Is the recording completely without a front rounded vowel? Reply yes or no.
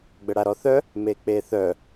no